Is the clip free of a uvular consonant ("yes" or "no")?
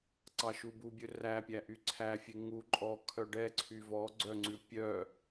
yes